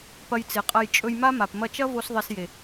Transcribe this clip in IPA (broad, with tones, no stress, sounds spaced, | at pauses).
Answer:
p ɐ˧ j t͡s e˨ qʼ ɐ˧ j t͡ʃʼ ɵ˧ j m a˦ m a˨ p m ɐ˧ t͡ʃ ɐ˦ v o˧ s ðˤ e˧ s j e˨